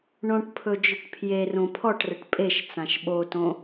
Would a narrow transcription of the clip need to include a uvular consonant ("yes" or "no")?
no